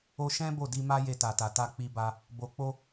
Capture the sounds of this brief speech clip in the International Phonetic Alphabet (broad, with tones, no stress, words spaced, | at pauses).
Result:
o˧ʃɛ̃˦ bo˦˨di˧ma˦ je˧ta˨ta˨ ta˧k͡pi˧ba˧ | bo˨k͡po˧